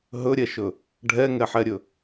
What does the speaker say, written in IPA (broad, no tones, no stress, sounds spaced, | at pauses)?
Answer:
ɦ ɵ ɾʲ ɛ ʃ ɵ | ɖʱ ɛ ŋ ɛ ħ ɛ ɾʲ ɵ